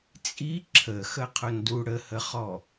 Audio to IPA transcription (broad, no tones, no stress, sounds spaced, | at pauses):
t͡sʼ i ǁʰ ə x ə qʰ ʊ n d u ɽ ə h ə χ ɔ